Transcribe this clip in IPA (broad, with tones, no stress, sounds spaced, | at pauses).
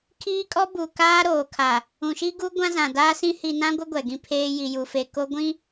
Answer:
kʰ iː˦ kʼ ɔ˦ b u˨ k aː˦ ɾ oː˨ kʰ a˨ | ũ˨ ʃ i˦ ɡ u˦ ɡʷ ã˦ z ã˨ d aː˦ s ĩ˦ h i˨ n ã˦ ɡʷ ɪ˦ ɡʷ ɛ˨ ɡ ĩ˦ pʰ eː˦ j i˨ j u˨ f e˨ k o˦ ɡʷ ĩ˦